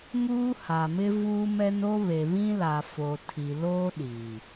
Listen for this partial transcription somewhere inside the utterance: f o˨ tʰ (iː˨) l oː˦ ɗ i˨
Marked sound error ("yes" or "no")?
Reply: yes